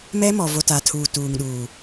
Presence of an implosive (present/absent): present